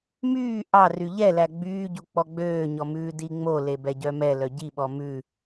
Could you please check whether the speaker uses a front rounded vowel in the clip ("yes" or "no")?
yes